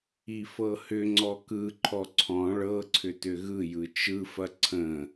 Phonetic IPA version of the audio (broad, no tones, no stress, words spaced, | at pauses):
ifɤhʏŋ͡ǀɔ kɯǃʰɔ ǀʰɔ̃ ɭɤǀʰʏ tʏɣɯjɯ t͡ʃɯfɐ ǀʰə̃